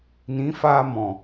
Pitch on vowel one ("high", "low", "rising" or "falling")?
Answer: rising